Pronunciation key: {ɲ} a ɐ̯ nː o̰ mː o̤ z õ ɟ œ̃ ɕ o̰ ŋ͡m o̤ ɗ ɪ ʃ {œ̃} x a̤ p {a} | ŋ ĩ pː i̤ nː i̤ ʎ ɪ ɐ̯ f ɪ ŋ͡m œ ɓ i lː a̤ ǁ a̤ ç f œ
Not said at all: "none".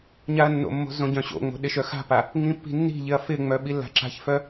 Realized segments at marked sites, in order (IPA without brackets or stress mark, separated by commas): ɲ, œ, a